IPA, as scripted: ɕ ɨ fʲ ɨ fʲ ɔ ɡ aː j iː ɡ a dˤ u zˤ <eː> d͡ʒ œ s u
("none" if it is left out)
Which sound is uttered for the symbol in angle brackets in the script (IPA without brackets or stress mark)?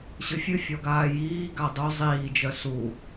iː